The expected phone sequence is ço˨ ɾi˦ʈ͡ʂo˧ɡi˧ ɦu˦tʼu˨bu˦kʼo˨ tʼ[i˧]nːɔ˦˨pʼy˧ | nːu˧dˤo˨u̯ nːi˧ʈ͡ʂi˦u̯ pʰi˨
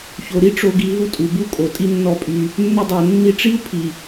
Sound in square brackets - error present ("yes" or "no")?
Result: yes